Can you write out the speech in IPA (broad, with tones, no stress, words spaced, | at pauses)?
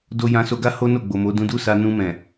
do˧jã˧ so˧ɡa˦ ho˦no˦˨ ɡ͡bo˨mo˨˦ dũ˧du˦sa˧ nũ˧mɛ̃˨